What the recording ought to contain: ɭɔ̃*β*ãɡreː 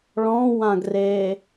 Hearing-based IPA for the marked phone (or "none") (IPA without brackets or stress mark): w